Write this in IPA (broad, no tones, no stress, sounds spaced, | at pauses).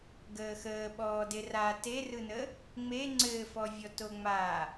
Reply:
ɡ əː x əː ɓ ɔː d e r a t e r ɯ n ə | ŋ͡m e ŋ͡ǀ ɘː f ɔ vʲ ɔ t o ŋ͡m a